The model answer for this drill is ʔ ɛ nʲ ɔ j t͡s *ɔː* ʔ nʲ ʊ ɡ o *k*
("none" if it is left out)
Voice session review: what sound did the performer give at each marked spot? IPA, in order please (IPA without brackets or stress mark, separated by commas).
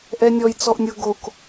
ɔ, k